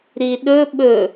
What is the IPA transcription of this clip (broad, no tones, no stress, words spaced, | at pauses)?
ɾiɗɵ ɓɵ